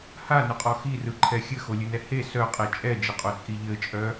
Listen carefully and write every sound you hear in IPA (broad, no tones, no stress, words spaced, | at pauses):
hanʊqʼɔ xirɯǃʰɛ xʲɘxolʲɘnɛ he sœqʼe t͡ʃʼɛd͡ʒɘqʼot͡sʼi ʎɘt͡ʃʼœ